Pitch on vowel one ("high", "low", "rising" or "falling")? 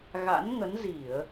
rising